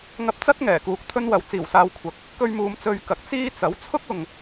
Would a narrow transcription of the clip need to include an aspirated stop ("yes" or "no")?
yes